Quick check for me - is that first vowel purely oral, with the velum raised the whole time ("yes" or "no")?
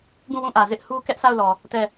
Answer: no